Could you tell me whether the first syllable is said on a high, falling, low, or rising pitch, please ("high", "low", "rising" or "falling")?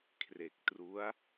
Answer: low